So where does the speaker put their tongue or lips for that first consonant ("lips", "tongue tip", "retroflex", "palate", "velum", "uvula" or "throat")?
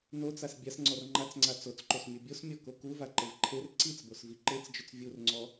tongue tip